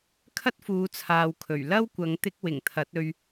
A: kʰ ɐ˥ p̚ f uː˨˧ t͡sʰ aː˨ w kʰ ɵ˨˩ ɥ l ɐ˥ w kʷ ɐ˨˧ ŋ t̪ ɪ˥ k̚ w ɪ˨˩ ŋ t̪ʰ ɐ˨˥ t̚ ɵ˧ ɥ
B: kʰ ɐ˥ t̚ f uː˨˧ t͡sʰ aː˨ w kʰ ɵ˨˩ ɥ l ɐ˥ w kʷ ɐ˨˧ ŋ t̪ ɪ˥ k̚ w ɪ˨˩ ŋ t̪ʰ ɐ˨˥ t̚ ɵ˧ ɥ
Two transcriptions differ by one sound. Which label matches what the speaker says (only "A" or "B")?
B